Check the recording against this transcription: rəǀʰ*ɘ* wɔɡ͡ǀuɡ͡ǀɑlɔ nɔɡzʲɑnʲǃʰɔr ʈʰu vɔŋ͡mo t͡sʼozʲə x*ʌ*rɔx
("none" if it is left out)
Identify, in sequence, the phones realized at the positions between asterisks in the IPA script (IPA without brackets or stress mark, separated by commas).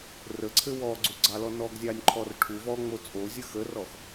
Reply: ɘ, ə